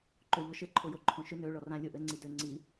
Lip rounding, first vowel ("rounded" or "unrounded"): rounded